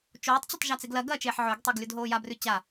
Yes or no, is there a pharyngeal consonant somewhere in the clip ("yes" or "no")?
yes